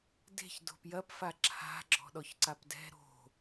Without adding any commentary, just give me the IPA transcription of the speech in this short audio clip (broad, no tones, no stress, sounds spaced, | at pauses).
d e̤ ç d o̤ p j ɐ p f a ǁʰ a̤ ɡ͡ǁ ɔ̤ ɗ ɔ ç ǀ a p d ɛ̤ ɾ o̤